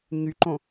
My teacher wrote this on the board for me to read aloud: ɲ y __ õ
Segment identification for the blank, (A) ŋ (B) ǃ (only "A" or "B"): B